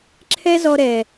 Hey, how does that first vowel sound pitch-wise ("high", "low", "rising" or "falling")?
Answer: high